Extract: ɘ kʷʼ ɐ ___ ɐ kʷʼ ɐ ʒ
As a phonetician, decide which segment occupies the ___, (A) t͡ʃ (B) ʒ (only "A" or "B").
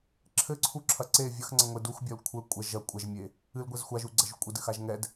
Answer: B